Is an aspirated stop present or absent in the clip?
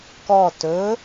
absent